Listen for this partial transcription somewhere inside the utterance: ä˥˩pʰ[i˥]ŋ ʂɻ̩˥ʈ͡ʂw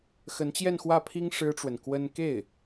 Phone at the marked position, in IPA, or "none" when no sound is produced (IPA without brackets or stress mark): i˥